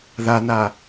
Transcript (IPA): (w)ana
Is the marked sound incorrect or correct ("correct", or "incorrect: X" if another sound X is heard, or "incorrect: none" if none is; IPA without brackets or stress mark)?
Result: incorrect: ð